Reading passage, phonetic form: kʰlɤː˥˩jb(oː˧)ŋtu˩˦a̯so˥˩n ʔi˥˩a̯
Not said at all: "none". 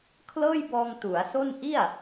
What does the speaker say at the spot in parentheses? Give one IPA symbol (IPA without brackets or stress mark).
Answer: ɔː˧